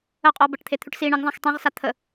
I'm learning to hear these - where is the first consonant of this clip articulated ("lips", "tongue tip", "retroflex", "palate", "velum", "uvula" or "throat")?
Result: uvula